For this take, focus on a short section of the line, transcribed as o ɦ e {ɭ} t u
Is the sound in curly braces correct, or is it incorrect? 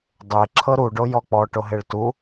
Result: correct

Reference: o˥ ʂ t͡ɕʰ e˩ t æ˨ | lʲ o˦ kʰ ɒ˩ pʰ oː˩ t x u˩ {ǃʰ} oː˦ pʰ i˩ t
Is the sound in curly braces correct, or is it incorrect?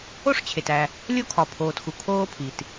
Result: incorrect: kʰ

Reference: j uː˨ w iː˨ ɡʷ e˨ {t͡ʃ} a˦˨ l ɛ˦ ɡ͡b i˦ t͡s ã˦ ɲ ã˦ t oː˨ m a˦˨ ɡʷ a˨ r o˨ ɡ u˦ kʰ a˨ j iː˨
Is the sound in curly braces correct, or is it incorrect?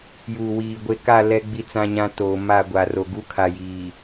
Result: incorrect: k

